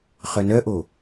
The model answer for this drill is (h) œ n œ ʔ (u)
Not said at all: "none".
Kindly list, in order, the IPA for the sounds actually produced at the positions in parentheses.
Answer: χ, o

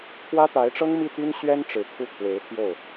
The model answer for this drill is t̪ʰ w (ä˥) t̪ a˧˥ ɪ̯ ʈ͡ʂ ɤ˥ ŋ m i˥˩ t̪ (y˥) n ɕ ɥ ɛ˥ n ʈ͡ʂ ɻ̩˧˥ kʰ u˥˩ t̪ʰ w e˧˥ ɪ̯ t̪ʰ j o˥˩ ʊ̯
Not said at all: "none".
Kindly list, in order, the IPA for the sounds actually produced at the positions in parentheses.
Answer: ä˥, y˥

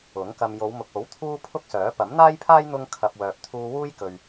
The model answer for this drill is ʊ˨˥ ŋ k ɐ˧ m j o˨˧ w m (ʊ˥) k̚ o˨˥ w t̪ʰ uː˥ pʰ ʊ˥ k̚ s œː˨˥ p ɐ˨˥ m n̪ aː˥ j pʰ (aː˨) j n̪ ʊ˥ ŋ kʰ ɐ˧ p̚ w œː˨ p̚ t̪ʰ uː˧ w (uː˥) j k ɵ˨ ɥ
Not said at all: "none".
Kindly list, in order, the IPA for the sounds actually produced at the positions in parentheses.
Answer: ʊ˨, aː˥, uː˥

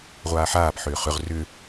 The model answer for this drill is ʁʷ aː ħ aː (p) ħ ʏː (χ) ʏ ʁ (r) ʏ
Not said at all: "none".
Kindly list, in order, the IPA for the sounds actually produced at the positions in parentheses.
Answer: p, χ, r

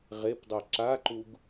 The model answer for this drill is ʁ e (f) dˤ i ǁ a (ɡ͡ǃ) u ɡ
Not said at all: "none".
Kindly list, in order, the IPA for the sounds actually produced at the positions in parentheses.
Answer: p, ǃ

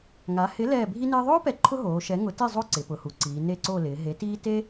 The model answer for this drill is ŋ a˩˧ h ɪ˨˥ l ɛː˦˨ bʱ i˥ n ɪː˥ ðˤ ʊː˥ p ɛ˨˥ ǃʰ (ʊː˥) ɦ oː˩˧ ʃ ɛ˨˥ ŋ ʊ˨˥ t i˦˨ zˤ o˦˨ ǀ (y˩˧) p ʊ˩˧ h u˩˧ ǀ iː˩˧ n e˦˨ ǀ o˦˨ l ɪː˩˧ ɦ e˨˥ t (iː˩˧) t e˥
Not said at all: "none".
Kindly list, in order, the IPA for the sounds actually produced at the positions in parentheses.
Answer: ʊ˥, ɪ˩˧, iː˥

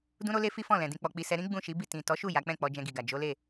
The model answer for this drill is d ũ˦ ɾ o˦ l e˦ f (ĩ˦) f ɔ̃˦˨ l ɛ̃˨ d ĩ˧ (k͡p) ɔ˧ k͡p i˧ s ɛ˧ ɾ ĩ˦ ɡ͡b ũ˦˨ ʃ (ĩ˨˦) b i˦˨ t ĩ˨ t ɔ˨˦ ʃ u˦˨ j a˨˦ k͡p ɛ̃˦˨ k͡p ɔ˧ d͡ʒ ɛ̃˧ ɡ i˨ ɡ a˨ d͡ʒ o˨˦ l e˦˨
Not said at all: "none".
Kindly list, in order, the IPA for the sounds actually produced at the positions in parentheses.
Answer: i˦, k͡p, i˨˦

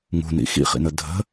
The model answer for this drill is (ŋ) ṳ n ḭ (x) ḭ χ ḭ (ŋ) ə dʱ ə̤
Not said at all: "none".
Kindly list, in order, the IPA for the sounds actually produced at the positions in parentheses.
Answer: ŋ, x, n

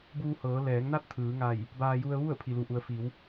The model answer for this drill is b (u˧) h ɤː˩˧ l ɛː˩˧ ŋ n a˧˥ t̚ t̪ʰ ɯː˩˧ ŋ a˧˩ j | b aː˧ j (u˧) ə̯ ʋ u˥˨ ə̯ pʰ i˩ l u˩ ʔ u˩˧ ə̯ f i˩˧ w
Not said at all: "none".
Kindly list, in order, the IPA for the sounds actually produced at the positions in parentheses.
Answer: uː˧, u˧

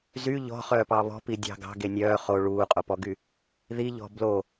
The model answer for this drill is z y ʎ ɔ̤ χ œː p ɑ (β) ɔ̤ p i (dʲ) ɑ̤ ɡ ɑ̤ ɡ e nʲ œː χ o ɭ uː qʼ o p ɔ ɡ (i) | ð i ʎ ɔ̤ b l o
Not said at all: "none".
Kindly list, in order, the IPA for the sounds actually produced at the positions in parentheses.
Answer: β, dʲ, y

